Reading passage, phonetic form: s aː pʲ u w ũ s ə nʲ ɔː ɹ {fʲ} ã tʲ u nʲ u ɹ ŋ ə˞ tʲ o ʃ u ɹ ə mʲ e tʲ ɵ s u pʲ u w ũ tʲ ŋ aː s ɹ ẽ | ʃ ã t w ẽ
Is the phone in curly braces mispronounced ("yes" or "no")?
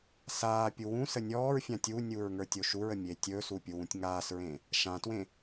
no